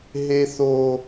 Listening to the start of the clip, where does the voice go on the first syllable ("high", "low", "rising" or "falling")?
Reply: high